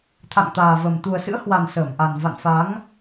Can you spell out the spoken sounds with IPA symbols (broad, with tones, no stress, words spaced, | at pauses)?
t̪ʰa̰˧˨ŋt̪aː˨˩və˨˩m t̪u˨˩ə̯sɨ̰˧˥ə̯hwa˨˩n səː˧˩mʔa˨˩n va̰˧˨nfa˨˦ŋ